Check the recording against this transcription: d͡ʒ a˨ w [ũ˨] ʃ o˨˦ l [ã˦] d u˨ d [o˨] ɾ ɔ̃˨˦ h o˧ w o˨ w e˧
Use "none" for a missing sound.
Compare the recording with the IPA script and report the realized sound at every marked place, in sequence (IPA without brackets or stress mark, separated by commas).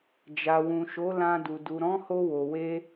ũ˨, ã˧, u˨